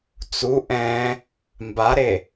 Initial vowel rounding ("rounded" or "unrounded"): rounded